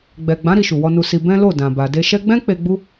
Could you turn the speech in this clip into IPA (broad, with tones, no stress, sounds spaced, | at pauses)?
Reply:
ɡ͡b ɛ˨ ɡ͡b ã˨˦ ɾ i˧ ʃ u˨ w ɔ˧ n u˧ s i˧ b ɛ̃˦ l o˦˨ d ã˨ b a˨ d e˧ ʃ ɛ˦ ɡ͡b ɛ̃˦ k͡p e˧ ɡ͡b u˦